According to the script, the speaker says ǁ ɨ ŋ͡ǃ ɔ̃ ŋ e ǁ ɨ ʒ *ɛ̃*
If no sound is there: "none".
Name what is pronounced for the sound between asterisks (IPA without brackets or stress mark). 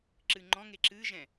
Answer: ɛ̃